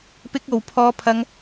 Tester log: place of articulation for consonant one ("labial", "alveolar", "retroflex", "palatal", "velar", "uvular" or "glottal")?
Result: labial